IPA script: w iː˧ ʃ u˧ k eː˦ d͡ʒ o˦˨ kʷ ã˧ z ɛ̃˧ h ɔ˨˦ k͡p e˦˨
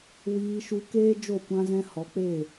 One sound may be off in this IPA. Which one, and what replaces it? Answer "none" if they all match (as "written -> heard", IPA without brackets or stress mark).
none